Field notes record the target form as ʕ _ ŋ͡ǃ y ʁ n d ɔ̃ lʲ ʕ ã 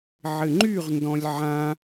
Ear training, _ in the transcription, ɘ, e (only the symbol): ɘ